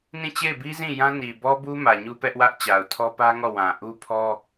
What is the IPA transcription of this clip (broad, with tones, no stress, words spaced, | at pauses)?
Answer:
nĩ˦˨t͡ɕe˦˨ɪ̯bi˦zĩ˦˨ jã˦ni˨ bɔ˦bu˦ mä˨ɲu˦pɛ˦ʔwä˦ʔ t͡ɕa˨ʊ̯tʰɔ˦ pä˦ŋɔ˦˨ wã˨ ʔu˦pʰɔ˦